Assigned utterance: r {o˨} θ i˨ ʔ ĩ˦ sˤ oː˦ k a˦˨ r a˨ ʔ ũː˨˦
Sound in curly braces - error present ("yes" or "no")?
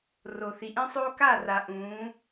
no